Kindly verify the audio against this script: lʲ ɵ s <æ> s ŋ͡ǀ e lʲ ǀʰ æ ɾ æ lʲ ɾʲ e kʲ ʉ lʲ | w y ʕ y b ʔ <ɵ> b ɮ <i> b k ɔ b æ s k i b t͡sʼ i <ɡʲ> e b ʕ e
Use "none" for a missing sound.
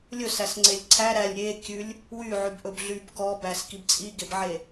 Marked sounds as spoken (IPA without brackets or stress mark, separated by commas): æ, ɵ, y, ɡ